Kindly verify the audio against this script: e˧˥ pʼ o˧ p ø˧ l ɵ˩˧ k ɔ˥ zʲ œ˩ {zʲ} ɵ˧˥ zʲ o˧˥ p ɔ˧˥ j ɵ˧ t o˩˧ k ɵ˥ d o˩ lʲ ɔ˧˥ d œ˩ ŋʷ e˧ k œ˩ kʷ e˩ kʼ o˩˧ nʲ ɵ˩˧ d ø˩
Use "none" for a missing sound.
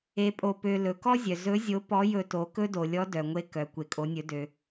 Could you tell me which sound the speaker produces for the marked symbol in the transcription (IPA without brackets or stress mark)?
z